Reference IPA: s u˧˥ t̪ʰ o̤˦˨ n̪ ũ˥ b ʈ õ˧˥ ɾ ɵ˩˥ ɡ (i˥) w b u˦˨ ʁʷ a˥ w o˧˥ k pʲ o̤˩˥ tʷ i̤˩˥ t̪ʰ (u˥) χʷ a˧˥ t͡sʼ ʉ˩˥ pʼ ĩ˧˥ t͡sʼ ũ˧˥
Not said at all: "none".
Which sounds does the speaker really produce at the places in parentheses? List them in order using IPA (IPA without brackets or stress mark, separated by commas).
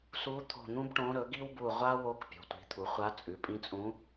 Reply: i˥, u˩˥